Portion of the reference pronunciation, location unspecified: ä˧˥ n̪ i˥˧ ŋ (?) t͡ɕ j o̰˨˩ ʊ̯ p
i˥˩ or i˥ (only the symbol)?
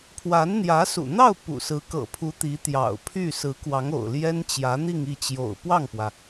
i˥˩